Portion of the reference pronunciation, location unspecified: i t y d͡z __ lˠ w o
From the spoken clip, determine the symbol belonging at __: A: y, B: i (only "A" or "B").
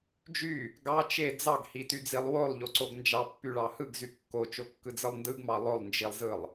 B